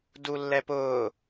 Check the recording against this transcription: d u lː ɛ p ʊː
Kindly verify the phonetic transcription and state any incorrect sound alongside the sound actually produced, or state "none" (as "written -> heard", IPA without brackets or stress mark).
none